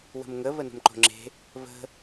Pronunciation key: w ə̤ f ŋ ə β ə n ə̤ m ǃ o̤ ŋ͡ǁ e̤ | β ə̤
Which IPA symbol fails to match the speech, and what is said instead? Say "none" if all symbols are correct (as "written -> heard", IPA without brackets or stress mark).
f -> m